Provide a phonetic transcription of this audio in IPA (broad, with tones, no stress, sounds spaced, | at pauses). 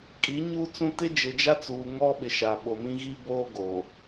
kʼ i˨˦ ɲ uː˦ t͡s ũ˦ t ɪ˦ d͡ʒ ɪ˨ d͡ʒ a˦ t͡s uː˨ ŋ ɔ˦ ɓ ɪ˨ ʃ a˨ ɓ o˨ m ĩ˦ ɣ i˦ b oː˦ ɡ o˨